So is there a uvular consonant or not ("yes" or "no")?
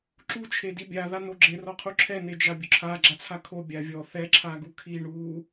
yes